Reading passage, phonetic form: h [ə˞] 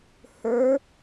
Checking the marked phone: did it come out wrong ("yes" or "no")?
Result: no